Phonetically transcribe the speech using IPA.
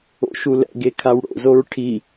o̰ ʃ u l ɛ̰ ɡ e kʰ a w ɽ o̰ z o ɹ ʈʰ i

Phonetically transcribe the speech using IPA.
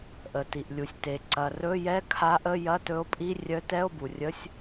ʔ ə˩ t i˩ ʔ lʲ u˩ sʲ t e˩ ǀ ɐ˩ r ɵ˧˥˧ j ɛ˧˥˧ kʰ a˧˥ ʔ ə˧˥˧ j ɐ˧˥˧ t ɵ˧˥ o̯ pʼ i˧˥˧ rʲ œ˧˥ t ɛ˧˥˧ o̯ b u˩ rʲ ə˧˥˧ sʲ

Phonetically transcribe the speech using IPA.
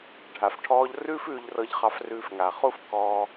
ɖʱ a˩ f ʈʰ ɔː˧ ʎ r ʉː˥ f ʉː˧ ʎ r ɤ˧ ʎ χ ɑ˧ f r ʉː˧ f ŋ a˩ χ u˥ f k ɔː˧

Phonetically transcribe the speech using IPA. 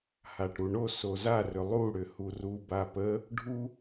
h a ʈ ɾ u ɳ o s o z a r ʏ lˠ u ɽ ʏ h u r u b a p ə | ɖʱ u

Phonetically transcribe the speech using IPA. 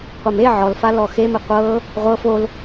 qʷ ɛ m e ʕ ɔ l f a l ɔ x e m e qʷ ɤ | ʁʷ ɤ f o l

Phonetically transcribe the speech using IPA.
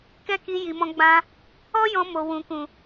k ɛ˦ k i˧ j i˨ m ɔ̃˧ ɡ͡b ã˧ | ɔ˦ j ɔ̃˧ m o˨ w ũ˨ k ũ˨

